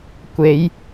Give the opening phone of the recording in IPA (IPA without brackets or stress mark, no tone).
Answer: kʷ